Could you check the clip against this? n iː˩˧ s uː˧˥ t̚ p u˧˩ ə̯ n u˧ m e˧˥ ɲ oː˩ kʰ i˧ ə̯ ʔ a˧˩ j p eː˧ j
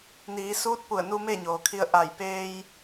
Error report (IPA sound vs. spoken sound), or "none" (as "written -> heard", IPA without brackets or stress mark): e˧˥ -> e˥˨